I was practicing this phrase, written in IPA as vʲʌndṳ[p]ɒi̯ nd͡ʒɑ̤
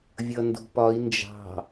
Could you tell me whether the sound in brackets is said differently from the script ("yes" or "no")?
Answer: no